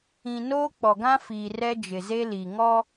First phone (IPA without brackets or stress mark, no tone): ĩ